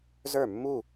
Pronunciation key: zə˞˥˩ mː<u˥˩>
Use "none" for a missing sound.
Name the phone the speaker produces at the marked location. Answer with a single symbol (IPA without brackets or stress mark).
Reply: u˥˩